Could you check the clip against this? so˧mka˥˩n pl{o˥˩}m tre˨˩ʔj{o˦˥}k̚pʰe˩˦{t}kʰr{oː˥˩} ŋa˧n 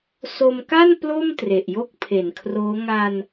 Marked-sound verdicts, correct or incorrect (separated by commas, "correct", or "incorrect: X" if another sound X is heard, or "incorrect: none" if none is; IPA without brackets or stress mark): correct, incorrect: o˥˩, incorrect: n, incorrect: oː˦˥